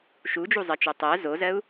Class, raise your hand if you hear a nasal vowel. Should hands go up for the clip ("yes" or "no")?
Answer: no